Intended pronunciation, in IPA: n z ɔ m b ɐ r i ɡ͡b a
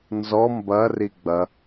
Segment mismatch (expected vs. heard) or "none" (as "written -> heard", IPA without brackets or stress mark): a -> ɐ